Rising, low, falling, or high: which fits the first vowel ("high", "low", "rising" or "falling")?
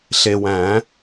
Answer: low